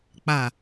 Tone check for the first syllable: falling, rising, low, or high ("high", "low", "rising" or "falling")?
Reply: low